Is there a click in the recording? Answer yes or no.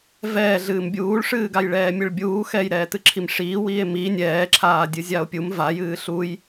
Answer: yes